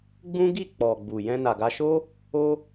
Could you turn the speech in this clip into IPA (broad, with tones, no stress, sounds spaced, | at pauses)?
ɡ͡b ũ˦ ɡ i˦˨ k͡p ɔ˨ ɡ͡b u˨ j ɛ̃˧ n a˨ ɡ a˧ ʃ o˦ | o˦